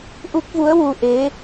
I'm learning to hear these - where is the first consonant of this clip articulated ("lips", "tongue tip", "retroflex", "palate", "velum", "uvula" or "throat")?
throat